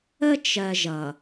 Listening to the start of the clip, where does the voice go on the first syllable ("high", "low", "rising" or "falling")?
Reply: high